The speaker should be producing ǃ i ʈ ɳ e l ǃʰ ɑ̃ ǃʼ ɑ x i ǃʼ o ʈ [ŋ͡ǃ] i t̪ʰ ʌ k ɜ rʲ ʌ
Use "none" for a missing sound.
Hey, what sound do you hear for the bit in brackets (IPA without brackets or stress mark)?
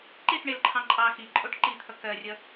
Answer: ǃ